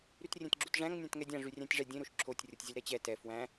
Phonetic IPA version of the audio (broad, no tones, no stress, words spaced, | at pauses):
ɾytrʲẽtɡ͡ǁutʐæ̃ŋ nʲãtŋɛdʲã ʐyrʲæ̃tʲʐɛ dʲẽ ɾoʃǁʰotʲ rʲotʲzʲelɾɛt͡ɕɛ tɛ fwæ̃